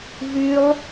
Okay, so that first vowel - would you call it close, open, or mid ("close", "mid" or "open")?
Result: close